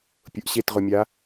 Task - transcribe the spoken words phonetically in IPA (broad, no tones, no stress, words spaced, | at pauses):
pʲʊʔɕetʁʊmʲa